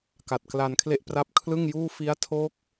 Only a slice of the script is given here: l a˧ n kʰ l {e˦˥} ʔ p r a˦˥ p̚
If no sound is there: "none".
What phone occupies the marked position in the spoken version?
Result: e˥˩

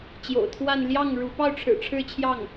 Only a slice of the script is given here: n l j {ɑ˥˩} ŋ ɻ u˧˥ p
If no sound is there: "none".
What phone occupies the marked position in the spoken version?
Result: ɑ˥˩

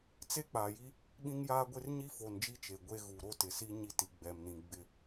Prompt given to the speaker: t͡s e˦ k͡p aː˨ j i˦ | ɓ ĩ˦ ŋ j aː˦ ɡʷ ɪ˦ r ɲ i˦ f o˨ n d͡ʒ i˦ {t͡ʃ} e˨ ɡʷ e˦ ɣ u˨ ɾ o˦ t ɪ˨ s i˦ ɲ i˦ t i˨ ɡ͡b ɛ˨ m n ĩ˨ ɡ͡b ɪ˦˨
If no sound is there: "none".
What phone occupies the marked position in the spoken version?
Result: t͡ʃ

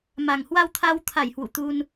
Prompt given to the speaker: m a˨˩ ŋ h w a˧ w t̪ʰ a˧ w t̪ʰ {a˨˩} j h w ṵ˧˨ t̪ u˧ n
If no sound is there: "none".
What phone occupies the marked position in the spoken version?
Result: a˧˩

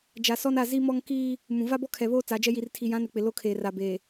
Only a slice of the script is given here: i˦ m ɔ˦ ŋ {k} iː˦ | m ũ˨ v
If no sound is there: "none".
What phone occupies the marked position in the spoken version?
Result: k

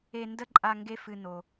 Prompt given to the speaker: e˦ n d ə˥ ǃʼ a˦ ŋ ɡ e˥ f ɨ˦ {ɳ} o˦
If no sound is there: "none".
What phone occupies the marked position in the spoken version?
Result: n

